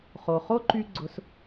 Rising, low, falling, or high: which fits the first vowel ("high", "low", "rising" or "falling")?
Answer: low